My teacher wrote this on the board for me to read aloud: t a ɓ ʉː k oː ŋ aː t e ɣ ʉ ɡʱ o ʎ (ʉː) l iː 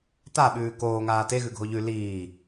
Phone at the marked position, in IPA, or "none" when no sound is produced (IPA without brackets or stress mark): ʉ